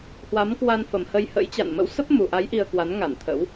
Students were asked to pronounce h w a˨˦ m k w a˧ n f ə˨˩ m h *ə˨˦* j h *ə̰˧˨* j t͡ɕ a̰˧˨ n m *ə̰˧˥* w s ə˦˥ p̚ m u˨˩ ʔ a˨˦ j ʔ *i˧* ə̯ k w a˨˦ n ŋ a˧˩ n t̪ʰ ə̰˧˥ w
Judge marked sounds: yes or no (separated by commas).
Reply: no, no, yes, yes